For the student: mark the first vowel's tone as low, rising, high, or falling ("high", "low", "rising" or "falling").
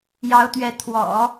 rising